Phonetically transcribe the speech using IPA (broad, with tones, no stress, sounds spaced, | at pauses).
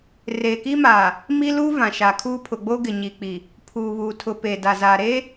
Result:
r eː˨ k i˦ m aː˨ | m i˦ l uː˦ v ã˨ ʃ a˨ kʰ uː˦ pʰ ʊ˨ ɡ͡b o˦ ɡ ɪ˨ ɲ i˨ k͡p i˨ | pʰ uː˨ β uː˨ tʰ ʊ˨ p e˨ d a˨ z aː˨ ɾ e˦